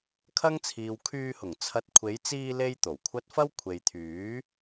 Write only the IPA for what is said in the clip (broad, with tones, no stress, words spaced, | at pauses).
kʰɐ˥ŋt͡sʰiː˨w kʰyː˧hʊ˨˩ŋ t͡sʰɐ˨˥t̚kʷʰe˨˧jt͡siː˧ le˥jt̪o˨˩wkʷʰɐ˥t̚ fɐ˥w kʷʰe˨jt̪ʰyː˨˥